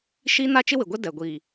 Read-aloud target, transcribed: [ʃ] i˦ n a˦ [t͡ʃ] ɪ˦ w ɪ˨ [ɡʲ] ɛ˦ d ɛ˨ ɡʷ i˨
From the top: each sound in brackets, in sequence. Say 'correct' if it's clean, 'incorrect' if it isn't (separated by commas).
correct, correct, incorrect